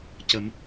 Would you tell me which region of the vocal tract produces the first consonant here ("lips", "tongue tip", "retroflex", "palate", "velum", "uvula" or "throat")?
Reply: palate